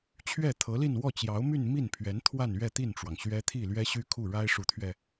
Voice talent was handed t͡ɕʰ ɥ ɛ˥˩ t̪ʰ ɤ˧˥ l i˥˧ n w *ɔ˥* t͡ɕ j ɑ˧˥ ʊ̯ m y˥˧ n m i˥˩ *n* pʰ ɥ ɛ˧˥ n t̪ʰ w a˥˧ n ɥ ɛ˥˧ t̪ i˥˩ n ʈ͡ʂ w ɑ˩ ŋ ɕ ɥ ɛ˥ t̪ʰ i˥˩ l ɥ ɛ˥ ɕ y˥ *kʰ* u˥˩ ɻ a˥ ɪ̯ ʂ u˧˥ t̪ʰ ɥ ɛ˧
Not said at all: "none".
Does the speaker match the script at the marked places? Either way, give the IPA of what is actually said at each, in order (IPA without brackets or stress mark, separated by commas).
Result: ɔ˥˩, n, kʰ